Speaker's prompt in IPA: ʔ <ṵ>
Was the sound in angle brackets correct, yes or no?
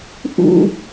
yes